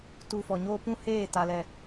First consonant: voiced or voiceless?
voiceless